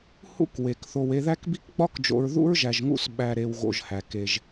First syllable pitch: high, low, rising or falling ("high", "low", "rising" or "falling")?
high